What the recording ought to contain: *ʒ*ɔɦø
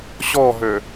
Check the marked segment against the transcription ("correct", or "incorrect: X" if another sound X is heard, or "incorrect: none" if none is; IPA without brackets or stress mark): incorrect: ɕ